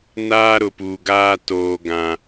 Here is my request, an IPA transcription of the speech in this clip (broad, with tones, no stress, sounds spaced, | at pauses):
n aː˦ ɾ ʊ˨ p uː˨ ɡ aː˦ t oː˦ ɡ ã˦